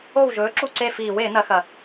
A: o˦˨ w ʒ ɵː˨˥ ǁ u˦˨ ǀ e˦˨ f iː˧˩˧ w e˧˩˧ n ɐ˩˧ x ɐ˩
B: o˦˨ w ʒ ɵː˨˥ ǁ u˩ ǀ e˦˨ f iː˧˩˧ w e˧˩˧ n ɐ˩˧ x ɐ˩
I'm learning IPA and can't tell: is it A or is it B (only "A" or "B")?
A